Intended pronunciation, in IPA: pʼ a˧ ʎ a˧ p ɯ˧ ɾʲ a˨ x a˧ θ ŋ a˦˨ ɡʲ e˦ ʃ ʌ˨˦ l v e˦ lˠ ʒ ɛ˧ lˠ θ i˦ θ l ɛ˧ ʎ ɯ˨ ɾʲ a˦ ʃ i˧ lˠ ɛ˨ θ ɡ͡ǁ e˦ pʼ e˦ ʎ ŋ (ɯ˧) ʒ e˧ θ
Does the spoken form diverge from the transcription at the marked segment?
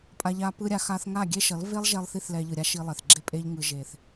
no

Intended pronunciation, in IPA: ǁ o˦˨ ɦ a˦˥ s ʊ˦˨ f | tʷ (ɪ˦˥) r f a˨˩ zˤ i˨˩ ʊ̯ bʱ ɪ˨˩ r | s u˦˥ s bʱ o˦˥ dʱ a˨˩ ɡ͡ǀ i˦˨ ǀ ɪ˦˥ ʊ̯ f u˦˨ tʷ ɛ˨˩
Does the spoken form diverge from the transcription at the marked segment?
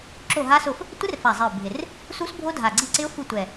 no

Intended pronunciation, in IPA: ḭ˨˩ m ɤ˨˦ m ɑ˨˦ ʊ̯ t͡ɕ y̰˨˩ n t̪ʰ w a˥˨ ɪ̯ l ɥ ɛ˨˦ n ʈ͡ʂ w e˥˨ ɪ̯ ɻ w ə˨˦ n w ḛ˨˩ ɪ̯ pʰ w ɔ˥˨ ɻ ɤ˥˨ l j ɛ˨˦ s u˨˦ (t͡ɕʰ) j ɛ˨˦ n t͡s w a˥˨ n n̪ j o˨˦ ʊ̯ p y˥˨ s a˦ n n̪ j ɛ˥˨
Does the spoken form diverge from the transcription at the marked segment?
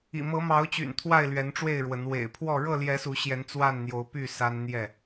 yes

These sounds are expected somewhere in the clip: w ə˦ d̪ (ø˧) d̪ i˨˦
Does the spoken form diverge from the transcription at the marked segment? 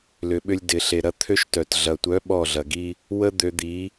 no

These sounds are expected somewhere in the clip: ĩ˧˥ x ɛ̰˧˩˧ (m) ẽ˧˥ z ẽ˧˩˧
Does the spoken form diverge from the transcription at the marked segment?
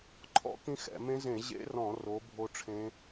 no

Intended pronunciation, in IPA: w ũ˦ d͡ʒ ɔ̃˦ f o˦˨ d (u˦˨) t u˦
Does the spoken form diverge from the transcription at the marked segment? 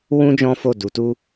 yes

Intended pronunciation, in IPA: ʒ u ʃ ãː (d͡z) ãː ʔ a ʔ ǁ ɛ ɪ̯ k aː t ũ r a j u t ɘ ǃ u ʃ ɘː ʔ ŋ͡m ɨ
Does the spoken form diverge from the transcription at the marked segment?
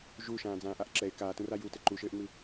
no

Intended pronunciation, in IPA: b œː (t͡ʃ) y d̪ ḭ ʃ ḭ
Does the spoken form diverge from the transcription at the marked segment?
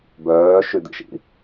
yes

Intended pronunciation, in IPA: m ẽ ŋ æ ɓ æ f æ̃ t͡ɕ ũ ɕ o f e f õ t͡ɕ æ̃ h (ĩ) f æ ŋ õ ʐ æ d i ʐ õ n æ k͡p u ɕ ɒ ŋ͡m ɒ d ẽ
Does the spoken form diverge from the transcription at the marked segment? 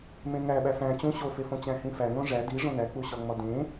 no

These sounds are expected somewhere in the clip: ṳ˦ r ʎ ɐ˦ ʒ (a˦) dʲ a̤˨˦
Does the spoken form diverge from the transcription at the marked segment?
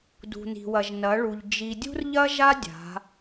no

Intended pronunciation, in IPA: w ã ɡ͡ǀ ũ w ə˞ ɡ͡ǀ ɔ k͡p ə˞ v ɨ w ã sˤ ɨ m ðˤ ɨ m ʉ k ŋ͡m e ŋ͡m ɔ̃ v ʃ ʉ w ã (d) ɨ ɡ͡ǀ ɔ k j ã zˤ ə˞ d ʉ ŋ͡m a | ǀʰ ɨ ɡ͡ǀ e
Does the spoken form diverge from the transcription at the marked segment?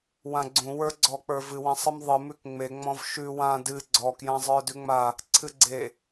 no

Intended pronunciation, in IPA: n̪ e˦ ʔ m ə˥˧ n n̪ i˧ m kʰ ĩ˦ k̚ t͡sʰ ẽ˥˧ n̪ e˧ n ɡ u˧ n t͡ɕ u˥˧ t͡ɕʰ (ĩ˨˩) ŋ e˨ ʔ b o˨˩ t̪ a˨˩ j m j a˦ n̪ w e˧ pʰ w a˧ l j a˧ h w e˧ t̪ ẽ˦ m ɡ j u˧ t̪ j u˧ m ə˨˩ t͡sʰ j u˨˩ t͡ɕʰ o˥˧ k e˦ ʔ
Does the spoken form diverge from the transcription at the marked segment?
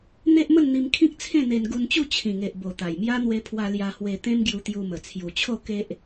no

